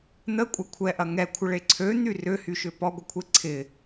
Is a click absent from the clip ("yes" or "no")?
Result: no